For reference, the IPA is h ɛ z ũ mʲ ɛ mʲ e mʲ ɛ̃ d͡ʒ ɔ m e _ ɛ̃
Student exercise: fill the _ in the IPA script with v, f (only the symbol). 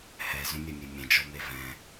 v